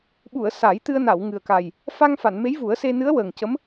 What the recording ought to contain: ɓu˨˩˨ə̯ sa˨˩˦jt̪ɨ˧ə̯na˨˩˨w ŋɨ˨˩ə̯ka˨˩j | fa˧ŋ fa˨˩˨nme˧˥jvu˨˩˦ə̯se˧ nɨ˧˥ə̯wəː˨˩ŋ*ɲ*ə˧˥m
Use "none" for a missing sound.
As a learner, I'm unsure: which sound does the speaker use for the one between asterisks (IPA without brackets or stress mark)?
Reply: c